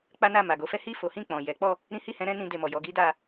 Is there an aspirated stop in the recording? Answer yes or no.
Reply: no